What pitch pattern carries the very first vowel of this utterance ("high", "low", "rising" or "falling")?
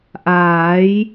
rising